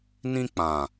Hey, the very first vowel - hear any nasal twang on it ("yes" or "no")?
yes